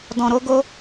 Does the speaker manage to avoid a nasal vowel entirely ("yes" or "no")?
no